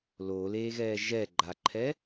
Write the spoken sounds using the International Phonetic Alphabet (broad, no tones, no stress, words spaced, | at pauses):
loːleːɣɛː ʒɛ ɡ͡ǃaǃʰɛ